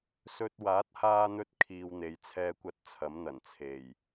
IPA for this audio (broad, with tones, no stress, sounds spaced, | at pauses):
s ɵ˧ t̚ w aː˨˥ t̚ h aː˧ n̪ ɵ˧ t̚ kʰ iː˧ w n̪ e˨˧ j t͡sʰ ɛː˥ kʷ ɐ˥ t̚ t͡sʰ ɐ˨˥ m n̪ ɐ˨˩ n t͡sʰ e˨˩ j